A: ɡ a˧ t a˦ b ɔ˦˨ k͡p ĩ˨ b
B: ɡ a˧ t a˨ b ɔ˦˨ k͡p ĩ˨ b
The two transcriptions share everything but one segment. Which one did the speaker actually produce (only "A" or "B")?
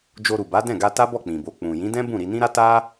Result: A